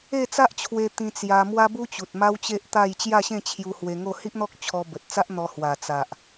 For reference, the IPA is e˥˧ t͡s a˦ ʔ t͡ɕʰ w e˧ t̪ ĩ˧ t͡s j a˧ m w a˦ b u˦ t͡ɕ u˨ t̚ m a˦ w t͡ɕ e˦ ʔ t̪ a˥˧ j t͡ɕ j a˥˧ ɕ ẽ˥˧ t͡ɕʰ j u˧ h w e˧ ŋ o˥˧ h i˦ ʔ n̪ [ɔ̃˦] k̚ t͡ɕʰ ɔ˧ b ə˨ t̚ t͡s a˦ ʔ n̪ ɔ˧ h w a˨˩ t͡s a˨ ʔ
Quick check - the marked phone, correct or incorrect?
incorrect: ɔ˦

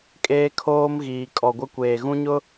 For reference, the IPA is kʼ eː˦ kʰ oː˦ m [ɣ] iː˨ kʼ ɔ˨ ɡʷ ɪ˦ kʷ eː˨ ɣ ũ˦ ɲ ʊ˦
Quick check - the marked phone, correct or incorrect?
correct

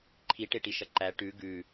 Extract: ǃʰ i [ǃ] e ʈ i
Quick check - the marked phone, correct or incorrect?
incorrect: ʈ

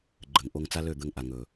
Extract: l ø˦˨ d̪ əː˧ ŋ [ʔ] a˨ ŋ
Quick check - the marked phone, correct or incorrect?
correct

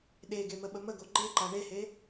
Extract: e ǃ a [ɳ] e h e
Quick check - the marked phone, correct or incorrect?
correct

